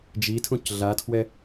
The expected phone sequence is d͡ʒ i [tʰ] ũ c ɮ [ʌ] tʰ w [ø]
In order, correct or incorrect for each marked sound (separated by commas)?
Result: correct, incorrect, incorrect